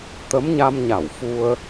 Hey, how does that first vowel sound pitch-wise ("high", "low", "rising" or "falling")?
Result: rising